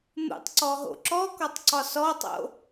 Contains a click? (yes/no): yes